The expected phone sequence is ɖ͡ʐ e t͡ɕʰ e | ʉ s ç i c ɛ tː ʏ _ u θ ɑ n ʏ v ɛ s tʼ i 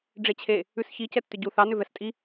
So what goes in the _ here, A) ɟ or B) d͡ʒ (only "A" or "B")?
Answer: A